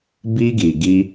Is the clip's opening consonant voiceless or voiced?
voiced